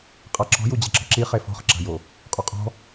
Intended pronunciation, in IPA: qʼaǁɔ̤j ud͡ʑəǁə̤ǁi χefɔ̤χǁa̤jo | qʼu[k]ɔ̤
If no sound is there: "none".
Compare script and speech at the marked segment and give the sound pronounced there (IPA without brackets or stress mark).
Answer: qʼ